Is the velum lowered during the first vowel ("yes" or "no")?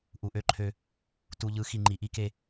no